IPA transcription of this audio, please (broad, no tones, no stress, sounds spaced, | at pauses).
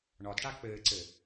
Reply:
ɳ ɒ d ʈ a k͡p ɘː ǀ ɘ